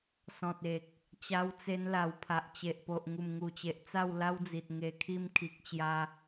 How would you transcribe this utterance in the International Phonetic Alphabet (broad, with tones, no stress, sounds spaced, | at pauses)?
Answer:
s ɔ̃˨ t̚ e˨ k̚ | t͡ɕ a˧ w t͡s e˧ n l a˨˩ w pʰ a˨ ʔ t͡ɕ e˨ ʔ p o˨ ʔ ŋ u˨˩ m ŋ u˨˩ t͡ɕ e˨ ʔ t͡s a˥˧ w l a˦ w d͡z i˨ t̚ ŋ e˨˩ kʰ i˧ m kʰ i˨ k̚ t͡ɕ j a˧